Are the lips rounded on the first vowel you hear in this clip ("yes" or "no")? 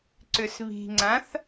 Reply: yes